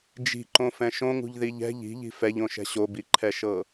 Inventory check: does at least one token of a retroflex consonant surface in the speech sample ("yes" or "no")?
no